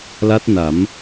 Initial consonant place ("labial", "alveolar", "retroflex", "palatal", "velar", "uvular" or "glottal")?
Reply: alveolar